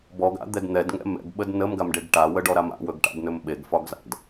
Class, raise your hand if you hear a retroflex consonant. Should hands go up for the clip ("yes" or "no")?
yes